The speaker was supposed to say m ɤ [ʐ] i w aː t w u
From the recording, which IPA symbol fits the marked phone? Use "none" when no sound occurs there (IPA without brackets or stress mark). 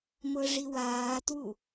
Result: ʐ